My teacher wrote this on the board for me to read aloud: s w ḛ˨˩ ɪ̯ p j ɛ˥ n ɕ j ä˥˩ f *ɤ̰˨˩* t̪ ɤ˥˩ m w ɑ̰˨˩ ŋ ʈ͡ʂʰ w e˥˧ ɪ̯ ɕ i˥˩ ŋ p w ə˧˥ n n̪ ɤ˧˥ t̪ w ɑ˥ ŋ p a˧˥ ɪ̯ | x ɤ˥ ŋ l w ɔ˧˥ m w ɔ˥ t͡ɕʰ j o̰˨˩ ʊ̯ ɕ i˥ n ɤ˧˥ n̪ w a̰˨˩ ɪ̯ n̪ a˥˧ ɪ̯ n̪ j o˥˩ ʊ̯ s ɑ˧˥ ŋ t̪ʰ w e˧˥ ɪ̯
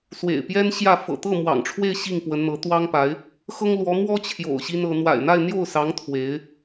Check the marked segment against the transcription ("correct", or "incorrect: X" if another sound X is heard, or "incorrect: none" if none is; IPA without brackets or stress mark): correct